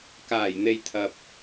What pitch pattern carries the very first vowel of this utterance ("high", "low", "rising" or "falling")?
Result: low